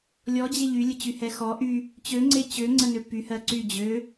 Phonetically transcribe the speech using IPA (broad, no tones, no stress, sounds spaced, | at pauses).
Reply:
lʲ ɔ d͡ʑ e ʎ y lʲ ə t͡ɕ y h ɛ x ɔ ʔ y | t͡ɕ ø ŋ͡ǀ e t͡ɕ ø ŋ͡ǀ ə n ø p y h ɜ ǀ y d͡ʑ ø